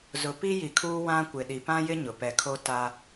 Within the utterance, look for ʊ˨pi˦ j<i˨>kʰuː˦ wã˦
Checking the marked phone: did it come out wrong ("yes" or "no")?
no